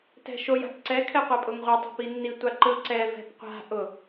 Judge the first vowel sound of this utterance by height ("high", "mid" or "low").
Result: mid